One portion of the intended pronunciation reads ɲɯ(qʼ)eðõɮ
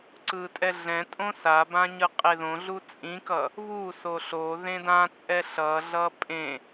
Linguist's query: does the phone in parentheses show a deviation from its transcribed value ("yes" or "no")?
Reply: no